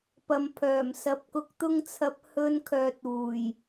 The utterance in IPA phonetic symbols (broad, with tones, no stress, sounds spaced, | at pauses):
p ɐ˨ m pʰ œː˨˩ m s ɐ˨˥ p̚ k ʊ˨ k̚ t̪ ʊ˧ ŋ t͡sʰ ɐ˨˥ p̚ h ɵ˧ n kʰ œː˨ t̚ uː˨˩ j